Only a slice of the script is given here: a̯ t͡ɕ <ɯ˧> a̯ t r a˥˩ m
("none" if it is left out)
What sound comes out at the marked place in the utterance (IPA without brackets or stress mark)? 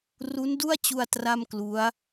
u˧